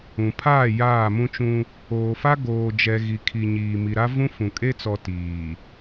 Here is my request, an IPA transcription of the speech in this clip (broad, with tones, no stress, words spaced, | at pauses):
ũ˨ pʰaː˦˨ jaː˦˨mũ˦t͡ʃũ˦ | oː˨fa˦ ɡoː˨d͡ʒɛ˨ ɣi˨kʰi˨ɲiː˨ mi˨ɾa˦vũ˦ fũ˨ kʼe˦t͡sɔ˨ tiː˨